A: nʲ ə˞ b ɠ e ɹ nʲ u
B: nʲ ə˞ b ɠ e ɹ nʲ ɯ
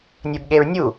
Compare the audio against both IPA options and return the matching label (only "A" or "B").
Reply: A